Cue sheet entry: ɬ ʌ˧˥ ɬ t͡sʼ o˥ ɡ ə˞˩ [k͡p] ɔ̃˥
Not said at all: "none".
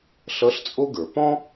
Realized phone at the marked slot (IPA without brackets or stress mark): p